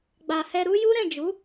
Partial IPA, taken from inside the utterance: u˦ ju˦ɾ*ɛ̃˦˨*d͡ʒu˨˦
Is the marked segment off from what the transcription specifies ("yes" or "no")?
no